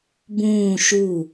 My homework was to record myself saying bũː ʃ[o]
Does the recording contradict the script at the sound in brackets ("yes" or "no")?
yes